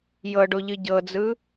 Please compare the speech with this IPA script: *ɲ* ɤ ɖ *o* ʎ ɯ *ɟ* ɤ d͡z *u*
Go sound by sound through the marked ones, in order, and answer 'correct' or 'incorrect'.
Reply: incorrect: j, correct, correct, incorrect: ɯ

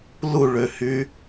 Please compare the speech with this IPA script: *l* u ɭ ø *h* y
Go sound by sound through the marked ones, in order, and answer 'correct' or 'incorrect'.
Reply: correct, correct

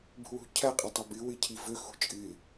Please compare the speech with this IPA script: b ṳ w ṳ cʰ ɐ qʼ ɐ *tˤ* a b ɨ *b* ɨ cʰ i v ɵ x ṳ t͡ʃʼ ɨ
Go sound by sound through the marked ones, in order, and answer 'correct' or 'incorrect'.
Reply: correct, incorrect: w

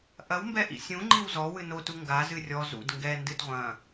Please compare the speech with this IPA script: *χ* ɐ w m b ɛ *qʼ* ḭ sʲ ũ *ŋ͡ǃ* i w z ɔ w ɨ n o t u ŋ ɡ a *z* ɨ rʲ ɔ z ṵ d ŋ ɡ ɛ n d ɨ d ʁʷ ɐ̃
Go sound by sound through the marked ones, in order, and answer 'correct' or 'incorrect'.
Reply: incorrect: ʔ, incorrect: ʔ, correct, correct

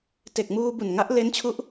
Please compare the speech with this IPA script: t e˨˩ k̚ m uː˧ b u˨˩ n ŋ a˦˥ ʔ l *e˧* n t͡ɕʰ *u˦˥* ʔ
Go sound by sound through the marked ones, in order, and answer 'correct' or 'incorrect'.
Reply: incorrect: e˦˥, correct

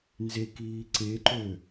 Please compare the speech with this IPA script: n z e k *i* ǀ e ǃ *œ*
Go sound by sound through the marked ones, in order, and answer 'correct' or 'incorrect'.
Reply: incorrect: iː, incorrect: ø

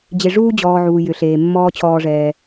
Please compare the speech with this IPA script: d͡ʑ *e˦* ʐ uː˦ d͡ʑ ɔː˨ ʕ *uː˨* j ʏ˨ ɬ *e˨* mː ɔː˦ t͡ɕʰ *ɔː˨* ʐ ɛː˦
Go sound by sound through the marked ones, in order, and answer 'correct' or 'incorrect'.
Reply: incorrect: e˨, correct, incorrect: eː˨, incorrect: ɔː˦

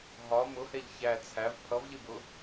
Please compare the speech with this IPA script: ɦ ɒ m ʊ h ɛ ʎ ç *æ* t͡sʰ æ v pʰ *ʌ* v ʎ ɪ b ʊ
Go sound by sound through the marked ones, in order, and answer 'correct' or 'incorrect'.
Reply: correct, correct

